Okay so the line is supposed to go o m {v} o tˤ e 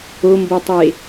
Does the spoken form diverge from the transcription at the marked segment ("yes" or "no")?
yes